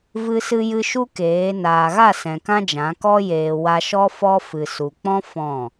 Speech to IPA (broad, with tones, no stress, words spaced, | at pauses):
vɨ˧sɨ˧jɨ˧ ʃu˦keː˨˦ naː˨ɣa˦˨sɛ̃˨ kã˦d͡ʒã˨˦kɔ˦ jeː˧ wa˧ʃɔ˦ fɔ˧fɨ˨ su˨k͡pɔ̃˦ fɔ̃˦˨